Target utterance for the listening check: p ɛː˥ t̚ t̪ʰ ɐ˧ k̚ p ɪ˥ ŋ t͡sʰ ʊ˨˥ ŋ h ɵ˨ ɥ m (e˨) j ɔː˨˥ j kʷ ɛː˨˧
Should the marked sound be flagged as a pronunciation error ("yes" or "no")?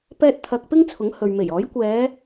yes